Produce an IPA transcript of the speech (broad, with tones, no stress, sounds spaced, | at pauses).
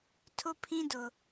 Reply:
tʰ ʊ˦ pʰ ĩ˦ d ʊ˨